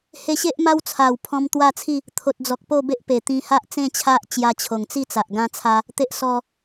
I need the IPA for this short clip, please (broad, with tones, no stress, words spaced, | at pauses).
he˧ɕe˦ʔma˦w t͡sʰa˨˩wpʰɔ̃˧m t̪wa˥˧t͡sʰi˥˧ | t̪ʰo˨t̚d͡zɔ˨k̚ po˥˧be˦ʔpe˨˩ t̪ĩ˧ha˦ʔ t͡sẽ˥˧t͡ɕʰa˦ʔ t͡ɕja˧t͡ɕʰo˨˩ŋt͡si˥˧t͡sa˨ʔ ɡã˧t͡sʰa˧ | t̪e˦ʔsɔ˧